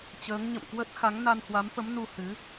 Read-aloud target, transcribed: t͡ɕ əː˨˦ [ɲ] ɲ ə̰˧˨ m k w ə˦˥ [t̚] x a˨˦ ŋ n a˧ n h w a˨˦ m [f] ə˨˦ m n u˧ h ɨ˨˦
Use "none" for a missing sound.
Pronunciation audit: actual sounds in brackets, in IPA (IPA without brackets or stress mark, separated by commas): ŋ, t̚, f